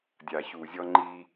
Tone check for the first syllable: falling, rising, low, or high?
low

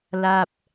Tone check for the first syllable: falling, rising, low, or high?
falling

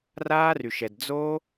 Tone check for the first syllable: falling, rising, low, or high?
high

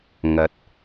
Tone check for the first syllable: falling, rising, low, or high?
low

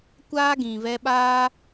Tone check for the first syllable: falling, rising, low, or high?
high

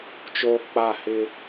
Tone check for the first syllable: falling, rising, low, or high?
high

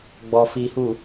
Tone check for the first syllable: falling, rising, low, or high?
low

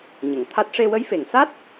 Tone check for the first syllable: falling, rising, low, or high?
low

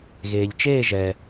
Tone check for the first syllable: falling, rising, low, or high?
low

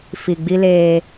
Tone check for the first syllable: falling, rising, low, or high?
low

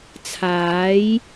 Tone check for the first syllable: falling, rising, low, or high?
rising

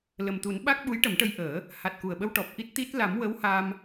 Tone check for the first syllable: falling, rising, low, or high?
low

